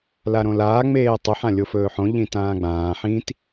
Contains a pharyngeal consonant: yes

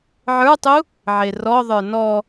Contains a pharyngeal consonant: yes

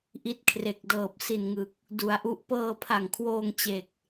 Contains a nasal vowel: no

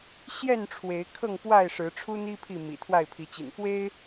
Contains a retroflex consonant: yes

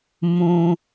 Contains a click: no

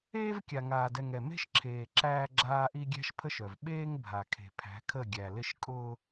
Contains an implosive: yes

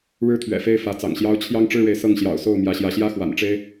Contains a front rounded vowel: no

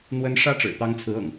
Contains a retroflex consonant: yes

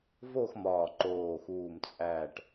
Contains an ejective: yes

